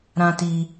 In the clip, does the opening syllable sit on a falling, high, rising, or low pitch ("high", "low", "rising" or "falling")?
high